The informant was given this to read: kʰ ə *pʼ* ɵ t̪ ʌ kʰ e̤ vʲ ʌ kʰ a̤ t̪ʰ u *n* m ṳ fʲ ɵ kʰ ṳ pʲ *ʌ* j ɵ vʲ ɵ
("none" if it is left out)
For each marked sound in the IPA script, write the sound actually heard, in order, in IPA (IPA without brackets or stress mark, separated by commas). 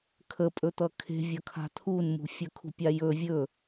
pʼ, n, a